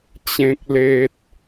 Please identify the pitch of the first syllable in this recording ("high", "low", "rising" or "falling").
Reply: low